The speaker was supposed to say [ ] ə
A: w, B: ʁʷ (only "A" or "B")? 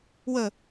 A